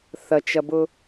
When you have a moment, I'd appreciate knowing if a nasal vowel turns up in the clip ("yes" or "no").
no